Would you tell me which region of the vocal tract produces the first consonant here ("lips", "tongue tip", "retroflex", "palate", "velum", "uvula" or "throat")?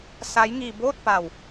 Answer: tongue tip